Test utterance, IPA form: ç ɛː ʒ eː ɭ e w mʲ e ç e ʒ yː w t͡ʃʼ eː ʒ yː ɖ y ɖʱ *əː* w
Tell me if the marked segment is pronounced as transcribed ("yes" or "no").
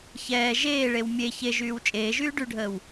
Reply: yes